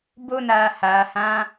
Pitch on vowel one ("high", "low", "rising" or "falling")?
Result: high